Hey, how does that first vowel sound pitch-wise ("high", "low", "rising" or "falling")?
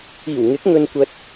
low